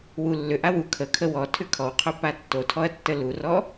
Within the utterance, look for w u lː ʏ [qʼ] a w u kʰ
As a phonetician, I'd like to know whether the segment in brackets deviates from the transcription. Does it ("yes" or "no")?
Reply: yes